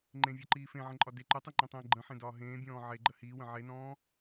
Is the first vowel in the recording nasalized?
yes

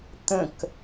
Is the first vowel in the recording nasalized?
yes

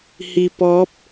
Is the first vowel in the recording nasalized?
no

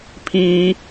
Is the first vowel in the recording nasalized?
yes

